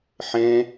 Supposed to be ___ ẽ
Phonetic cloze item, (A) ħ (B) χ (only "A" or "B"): A